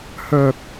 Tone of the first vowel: low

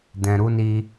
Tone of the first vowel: low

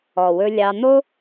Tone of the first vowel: low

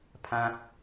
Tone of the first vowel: high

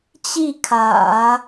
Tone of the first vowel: falling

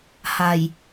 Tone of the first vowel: low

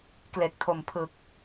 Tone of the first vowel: low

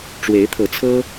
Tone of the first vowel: rising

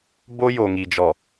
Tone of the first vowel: high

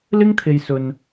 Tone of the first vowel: high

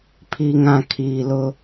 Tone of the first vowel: low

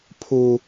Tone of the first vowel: high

